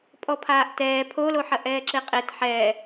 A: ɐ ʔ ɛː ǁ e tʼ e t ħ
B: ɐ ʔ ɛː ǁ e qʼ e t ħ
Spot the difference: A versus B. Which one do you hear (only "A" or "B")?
B